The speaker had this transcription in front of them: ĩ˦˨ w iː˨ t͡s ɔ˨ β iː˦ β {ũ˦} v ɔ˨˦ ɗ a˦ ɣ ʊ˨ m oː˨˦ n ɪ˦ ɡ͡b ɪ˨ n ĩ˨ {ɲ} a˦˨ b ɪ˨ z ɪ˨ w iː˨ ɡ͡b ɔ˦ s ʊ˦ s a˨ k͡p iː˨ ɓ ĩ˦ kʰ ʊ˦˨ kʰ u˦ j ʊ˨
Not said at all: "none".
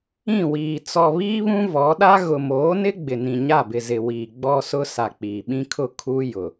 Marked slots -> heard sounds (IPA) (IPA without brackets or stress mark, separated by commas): ũ˦, ɲ